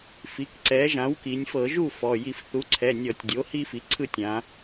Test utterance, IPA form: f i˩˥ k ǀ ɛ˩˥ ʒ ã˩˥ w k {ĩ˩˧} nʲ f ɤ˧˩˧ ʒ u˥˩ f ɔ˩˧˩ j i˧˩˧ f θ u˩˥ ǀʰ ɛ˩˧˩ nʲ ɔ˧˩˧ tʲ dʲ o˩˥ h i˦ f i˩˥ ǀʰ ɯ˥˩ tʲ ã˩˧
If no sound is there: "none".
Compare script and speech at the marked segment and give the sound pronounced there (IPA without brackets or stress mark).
i˩˧